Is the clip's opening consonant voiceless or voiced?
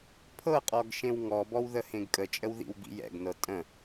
voiceless